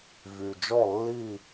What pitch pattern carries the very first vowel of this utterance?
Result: low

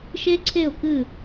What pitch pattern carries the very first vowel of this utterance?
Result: high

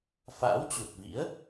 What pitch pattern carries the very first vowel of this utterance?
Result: rising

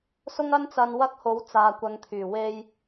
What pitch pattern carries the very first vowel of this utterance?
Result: high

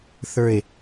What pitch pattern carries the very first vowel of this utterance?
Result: low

